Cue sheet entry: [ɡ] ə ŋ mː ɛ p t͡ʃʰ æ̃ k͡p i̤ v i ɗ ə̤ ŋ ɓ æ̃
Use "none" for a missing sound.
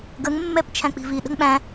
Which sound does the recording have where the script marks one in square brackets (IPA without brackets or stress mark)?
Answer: ɡ